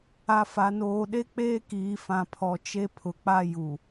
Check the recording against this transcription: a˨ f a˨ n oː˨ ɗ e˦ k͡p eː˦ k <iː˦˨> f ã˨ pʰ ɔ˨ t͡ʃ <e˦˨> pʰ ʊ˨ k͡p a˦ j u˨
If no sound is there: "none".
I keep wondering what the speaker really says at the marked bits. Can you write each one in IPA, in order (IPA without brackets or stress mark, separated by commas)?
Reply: iː˨, e˦